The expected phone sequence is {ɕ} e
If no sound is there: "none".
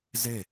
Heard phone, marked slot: z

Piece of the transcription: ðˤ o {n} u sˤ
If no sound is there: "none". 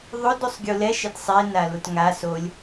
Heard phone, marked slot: d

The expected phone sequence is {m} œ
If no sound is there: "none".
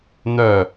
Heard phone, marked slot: n̪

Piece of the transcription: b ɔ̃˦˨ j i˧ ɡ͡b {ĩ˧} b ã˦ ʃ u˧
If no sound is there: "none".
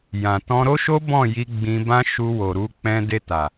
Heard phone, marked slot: ĩ˧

